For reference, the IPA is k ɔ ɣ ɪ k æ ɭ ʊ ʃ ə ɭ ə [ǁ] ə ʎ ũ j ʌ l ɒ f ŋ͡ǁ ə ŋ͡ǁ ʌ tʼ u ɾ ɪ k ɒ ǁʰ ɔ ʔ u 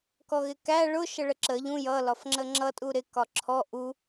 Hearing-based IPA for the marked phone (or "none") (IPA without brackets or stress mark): ǁ